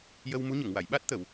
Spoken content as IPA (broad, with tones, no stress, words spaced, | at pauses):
jə˧wmu˧˥ɲə˨˩˨ŋwa˨˩˨j ɓa˦˥t̚t̪ə˨˩˨w